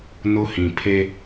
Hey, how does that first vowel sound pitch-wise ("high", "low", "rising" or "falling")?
high